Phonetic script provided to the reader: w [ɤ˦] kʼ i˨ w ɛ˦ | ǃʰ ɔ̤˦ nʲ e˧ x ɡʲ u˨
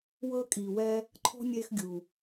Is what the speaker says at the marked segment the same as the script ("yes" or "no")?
yes